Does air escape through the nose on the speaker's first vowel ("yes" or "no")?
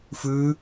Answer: no